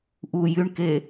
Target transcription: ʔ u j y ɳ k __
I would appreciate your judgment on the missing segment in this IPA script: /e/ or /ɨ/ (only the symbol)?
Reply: e